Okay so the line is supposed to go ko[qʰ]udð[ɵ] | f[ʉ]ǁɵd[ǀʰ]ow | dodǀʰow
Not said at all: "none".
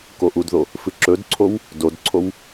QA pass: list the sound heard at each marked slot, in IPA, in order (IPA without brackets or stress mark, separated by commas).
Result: ʔ, o, ɨ, ǀʰ